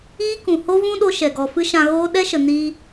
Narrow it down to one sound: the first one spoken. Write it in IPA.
iː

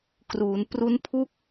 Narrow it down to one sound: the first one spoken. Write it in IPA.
k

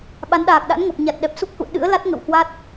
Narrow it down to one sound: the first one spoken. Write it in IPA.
ɓ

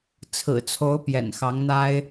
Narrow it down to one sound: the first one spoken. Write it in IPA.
t͡sʰ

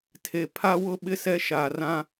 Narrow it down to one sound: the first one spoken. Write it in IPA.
tʰ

